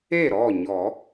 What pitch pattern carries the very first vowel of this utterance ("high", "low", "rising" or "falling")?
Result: falling